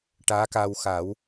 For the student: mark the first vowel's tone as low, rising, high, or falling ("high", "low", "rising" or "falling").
rising